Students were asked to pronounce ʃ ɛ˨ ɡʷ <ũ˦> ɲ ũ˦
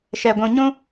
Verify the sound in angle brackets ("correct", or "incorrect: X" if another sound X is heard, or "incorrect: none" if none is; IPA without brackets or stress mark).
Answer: incorrect: ũ˨